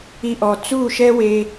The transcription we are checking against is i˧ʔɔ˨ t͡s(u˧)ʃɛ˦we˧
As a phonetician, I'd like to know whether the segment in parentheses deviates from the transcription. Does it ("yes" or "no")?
yes